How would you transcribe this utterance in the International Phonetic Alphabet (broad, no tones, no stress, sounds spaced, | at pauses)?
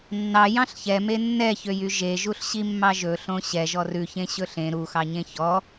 nː ɑ j ɑ̃ ɬ ç ɛ m e nː ɛ ç ø j y ʒ e ʒ u ɬ ɕ i mː ɑ ʒ ɵ ɬ õ ɕ ɛ ʒ ɔ r ʉ ç ẽ ɕ ɵ ɬ ẽ ɾ u x ɑ ɲ ẽ ç ɔ